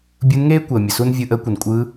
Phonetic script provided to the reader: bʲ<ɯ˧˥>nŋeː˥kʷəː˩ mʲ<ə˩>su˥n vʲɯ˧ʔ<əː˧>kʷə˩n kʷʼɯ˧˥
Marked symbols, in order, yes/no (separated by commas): yes, yes, no